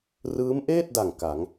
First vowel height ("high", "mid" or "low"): high